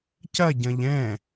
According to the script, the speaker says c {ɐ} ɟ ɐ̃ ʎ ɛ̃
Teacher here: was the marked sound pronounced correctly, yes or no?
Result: yes